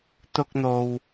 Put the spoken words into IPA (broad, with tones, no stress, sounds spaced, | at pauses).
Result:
t̪ ʊ˧ k̚ n̪ o˨ w